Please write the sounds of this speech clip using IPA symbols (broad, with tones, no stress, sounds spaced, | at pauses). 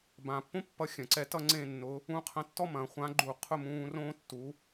b ãː˩ pː õ˥ pː ʌ˨˥ xʲ ɐ̃˩ ǀ ɛ˨˥ t ʌ˥ ŋ͡ǀ ẽ˥˨ nː ʊ˨˥ | ũ˨˥ qʰ ɐ̃˨˥ tː ɔ˥ m ɐ̃˩ χʷ ã˨˥ ɡ͡ǃ u˧˩ qʰ ʊ˥˨ m ũː˧ r õː˥ tː u˨˥